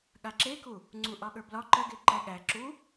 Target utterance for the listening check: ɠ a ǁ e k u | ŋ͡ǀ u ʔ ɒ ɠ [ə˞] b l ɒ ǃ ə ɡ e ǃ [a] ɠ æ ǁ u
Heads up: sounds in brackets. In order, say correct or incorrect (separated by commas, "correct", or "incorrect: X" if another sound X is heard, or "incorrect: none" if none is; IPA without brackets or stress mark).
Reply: correct, incorrect: æ